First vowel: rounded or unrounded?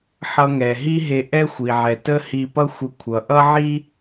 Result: unrounded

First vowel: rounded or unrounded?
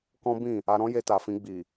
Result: rounded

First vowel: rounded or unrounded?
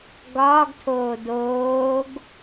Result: rounded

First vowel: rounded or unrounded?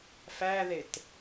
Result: unrounded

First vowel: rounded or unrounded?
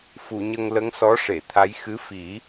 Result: rounded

